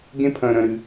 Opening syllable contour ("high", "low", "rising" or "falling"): high